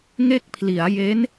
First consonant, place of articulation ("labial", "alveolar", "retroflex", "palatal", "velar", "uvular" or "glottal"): velar